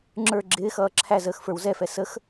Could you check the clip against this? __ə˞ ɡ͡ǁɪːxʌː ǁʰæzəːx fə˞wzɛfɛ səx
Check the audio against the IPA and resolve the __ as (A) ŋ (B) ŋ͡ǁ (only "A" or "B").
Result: B